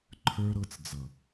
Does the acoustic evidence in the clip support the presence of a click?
yes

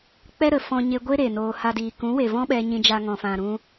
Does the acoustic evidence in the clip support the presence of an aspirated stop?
no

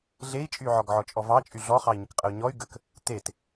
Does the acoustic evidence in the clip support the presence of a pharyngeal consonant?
yes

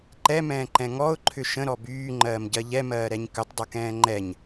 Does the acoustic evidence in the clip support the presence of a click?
yes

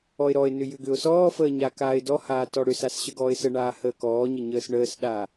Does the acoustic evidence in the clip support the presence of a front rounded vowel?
yes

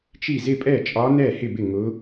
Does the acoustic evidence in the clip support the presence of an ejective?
yes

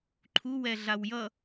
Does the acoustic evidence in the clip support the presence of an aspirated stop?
yes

